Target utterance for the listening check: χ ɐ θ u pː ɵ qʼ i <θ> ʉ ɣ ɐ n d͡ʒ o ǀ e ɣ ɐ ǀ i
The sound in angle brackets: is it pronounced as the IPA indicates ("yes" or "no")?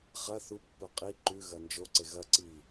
no